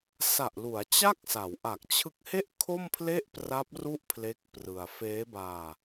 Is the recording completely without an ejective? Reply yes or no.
yes